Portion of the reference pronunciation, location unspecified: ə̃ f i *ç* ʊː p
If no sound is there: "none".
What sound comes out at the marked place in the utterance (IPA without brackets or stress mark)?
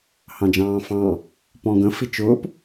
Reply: t͡ʃ